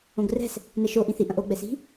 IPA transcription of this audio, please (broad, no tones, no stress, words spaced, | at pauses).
õɡrɛ̤s | nɛʃo ʔĩθi ʔɐ̃ʔo ɡ͡bɛsi̤